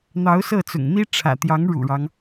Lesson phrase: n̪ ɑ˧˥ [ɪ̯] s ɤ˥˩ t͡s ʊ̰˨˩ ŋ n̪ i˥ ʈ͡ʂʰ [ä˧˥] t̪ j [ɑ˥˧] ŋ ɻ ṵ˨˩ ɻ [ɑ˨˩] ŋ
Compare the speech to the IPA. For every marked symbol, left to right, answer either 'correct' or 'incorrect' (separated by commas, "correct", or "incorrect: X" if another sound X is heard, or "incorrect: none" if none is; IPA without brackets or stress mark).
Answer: incorrect: ʊ̯, incorrect: ä̰˨˩, incorrect: ɑ˧˥, incorrect: ɑ˦